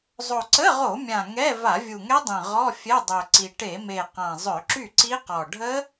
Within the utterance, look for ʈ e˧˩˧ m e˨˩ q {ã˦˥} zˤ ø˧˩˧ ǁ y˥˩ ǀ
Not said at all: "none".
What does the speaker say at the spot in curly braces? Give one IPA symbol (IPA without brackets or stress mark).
ã˨˩